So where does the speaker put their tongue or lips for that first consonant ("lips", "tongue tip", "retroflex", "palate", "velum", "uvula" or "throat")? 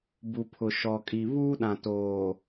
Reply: lips